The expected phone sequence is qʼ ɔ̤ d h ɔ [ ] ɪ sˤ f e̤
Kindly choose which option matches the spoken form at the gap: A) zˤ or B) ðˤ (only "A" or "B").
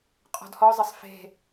A